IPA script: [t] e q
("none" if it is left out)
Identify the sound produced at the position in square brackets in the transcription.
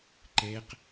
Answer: ǃ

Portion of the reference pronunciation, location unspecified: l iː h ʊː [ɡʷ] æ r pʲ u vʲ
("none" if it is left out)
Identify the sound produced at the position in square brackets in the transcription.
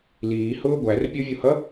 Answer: ɡʷ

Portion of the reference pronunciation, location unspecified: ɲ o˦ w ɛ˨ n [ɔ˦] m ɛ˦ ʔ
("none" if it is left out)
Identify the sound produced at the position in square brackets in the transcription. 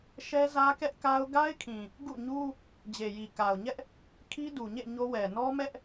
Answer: ɔ˦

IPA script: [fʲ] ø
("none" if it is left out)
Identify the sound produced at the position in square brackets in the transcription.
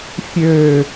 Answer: fʲ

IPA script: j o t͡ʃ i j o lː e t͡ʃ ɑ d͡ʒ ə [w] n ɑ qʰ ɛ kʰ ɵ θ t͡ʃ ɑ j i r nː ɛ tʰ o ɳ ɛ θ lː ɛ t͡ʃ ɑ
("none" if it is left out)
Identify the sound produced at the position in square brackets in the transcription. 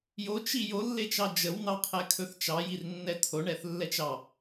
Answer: w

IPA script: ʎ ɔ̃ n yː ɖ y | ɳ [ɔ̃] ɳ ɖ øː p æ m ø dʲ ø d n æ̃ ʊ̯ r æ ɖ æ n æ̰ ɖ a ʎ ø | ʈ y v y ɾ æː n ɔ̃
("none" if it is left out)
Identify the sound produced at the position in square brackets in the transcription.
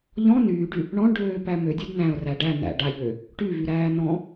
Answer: ɔ̃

